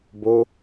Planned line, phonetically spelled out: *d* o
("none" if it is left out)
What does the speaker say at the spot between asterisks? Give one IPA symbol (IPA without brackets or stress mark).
b